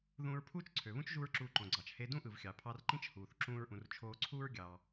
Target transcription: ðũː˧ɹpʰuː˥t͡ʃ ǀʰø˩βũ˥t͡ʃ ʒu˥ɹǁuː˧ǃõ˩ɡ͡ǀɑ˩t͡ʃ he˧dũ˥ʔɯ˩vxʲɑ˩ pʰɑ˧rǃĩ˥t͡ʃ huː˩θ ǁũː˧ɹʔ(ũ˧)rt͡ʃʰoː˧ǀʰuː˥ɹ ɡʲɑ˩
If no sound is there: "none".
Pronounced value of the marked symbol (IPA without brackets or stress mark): ũ˩